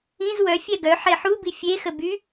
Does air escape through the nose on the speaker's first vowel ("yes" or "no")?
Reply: yes